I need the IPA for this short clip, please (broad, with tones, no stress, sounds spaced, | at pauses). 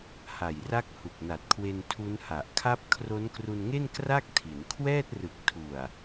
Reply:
h a˨˩ j r a˦˥ k̚ h u˨˩ k̚ n a˨˩ t̚ kʰ w e˧ n tʰ u˦˥ n h a˨˩ ʔ kʰ a˥˩ p̚ kʰ r o˦˥ n k r u˧ n ŋ e˥˩ n k r a˥˩ k̚ tʰ i˩˦ n kʰ w ɛː˥˩ t̚ r ɯ˨˩ k̚ tʰ u˨˩ a̯